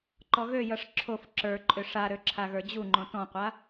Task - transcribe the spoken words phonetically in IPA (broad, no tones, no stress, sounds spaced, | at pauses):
ǃ ɔ ɣ ø j ʌ ʂ ǁʰ o f ǁ ə˞ ǃʼ ʏ ʂ a ɾ ø ǁʰ a ɣ ə˞ d͡ʑ u ŋ͡ǃ õ t ɔ̃ qʷ a